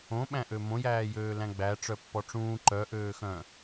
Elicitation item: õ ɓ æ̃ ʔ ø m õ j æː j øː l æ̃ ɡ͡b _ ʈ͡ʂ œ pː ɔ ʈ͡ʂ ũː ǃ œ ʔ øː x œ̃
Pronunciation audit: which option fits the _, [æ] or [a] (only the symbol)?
æ